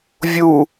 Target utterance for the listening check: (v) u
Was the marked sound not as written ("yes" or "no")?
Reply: yes